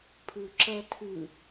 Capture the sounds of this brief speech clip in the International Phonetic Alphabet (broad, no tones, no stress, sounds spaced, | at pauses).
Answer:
pʰ ʉ ǁ ɜ tʰ ʉ